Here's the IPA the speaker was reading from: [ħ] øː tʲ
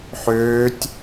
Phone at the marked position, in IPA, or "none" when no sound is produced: ħ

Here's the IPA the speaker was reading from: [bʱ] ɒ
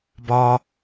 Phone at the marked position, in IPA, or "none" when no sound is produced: b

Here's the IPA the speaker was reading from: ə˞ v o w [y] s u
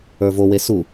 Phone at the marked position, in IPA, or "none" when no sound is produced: e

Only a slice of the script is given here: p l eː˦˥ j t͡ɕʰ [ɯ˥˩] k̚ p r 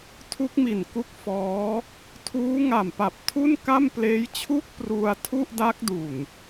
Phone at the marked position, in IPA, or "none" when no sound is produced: u˥˩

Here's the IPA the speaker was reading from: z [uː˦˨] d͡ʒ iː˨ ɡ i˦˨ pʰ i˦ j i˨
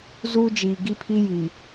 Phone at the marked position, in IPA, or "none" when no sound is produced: uː˦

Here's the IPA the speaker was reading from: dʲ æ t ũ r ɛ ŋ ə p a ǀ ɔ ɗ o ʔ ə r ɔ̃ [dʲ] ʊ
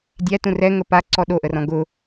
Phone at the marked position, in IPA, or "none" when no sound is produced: ɡ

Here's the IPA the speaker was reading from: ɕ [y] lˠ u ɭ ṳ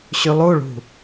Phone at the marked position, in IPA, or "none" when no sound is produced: y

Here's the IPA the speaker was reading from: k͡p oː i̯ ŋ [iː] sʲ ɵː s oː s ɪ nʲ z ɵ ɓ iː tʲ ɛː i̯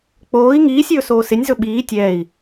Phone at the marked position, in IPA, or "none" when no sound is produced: iː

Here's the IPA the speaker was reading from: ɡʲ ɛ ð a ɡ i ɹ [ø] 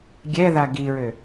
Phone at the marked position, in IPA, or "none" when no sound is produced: ø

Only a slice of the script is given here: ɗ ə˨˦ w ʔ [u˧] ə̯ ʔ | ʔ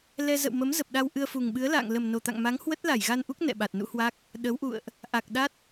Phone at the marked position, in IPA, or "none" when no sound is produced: ṵ˧˨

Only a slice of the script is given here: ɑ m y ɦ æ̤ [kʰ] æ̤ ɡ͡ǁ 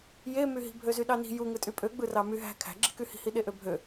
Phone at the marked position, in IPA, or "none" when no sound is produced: kʰ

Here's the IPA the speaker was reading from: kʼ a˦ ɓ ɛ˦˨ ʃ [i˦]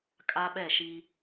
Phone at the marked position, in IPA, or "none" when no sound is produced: i˦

